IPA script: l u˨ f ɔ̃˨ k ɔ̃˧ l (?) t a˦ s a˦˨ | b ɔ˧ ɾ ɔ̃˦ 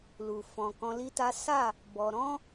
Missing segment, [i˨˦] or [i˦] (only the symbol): i˦